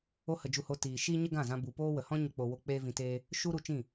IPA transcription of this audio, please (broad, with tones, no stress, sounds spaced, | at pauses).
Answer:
o˦ h ə˧ d͡ʒ u˧ h o˧ t iː˨ ʃ iː˦ ɲ ə˦ ɡ ã˦˨ z ã˧ b u˨ p oː˦ w ə˨ h ɔ̃˦ ɲ ə˧ k͡p o˨ w o˧ k͡p eː˦ v ĩ˧ t eː˦ | ʃ u˦ ɾ u˧ t͡ʃ ĩ˦˨